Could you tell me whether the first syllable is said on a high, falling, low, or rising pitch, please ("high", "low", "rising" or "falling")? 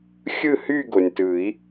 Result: falling